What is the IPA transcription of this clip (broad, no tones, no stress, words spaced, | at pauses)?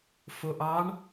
foʔɑɳ